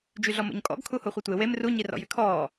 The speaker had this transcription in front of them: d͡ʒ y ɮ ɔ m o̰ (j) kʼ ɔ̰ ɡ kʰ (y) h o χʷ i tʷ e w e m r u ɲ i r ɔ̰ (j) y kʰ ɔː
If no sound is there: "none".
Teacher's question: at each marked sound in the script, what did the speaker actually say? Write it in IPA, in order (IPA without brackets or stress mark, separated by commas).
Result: ɲ, u, j